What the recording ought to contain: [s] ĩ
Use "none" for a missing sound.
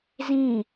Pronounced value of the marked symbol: z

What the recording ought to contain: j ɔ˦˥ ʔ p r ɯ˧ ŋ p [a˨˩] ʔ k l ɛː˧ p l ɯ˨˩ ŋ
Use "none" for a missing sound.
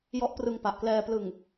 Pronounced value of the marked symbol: a˨˩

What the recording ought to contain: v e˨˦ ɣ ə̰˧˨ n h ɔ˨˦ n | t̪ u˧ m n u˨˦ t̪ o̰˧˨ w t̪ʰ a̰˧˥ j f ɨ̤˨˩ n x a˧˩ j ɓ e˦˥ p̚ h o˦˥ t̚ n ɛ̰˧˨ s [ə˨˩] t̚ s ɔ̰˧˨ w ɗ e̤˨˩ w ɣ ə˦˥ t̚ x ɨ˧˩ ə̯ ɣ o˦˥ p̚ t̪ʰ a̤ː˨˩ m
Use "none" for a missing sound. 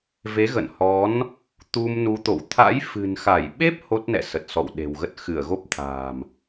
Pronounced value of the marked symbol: ə˨˩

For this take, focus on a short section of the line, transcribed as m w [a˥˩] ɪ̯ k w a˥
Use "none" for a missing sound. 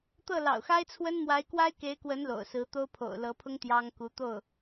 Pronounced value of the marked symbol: a˧˥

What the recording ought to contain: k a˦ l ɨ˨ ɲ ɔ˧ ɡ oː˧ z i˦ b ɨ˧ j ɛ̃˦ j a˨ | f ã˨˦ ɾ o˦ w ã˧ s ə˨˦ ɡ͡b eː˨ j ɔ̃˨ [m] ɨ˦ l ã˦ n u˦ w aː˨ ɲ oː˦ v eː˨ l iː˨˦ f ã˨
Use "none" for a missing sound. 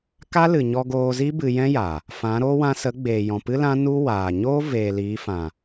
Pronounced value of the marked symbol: p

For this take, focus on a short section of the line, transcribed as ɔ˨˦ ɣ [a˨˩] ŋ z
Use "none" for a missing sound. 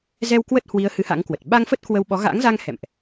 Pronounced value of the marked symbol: a̰˧˥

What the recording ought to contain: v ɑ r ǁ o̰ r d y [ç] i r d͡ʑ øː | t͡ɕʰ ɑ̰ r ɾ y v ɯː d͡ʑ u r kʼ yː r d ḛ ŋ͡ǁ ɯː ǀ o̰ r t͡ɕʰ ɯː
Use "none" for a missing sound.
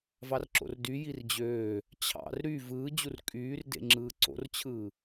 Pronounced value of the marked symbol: j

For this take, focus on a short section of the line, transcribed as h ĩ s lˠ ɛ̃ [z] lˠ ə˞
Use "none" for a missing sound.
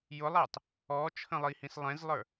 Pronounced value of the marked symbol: z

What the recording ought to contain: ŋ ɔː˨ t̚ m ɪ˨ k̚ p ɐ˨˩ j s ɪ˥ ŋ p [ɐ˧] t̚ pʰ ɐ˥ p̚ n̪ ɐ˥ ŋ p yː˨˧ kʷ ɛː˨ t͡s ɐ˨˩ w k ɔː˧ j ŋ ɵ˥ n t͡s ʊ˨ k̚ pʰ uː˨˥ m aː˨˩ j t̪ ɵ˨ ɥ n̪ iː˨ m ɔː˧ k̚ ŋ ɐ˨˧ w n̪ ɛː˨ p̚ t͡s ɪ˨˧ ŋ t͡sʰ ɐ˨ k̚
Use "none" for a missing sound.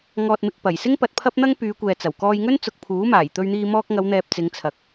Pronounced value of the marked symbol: ɐ˧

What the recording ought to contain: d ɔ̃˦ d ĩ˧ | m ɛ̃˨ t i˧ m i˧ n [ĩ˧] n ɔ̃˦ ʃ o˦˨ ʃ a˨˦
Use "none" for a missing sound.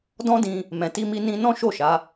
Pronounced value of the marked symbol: ĩ˧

